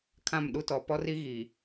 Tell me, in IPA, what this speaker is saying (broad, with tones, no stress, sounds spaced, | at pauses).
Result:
kʰ ã˦˨ m ɗ u˦ t ɔ˨ p ɔ˦ r i˦ ɣ i˨